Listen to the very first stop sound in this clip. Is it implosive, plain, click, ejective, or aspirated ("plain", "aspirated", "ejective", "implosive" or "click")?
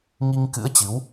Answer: plain